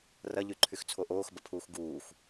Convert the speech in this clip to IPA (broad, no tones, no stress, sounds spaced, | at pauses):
r ɐ ʎ y ǃʰ y x t͡sʰ o ʔ oː x b ɐ pʰ uː x ɡ uː x